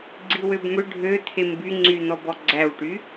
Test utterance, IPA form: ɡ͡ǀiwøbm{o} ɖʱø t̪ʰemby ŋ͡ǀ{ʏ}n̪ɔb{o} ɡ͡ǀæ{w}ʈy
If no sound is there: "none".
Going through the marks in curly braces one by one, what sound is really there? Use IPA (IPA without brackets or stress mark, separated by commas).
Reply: ɵ, y, ɔ, w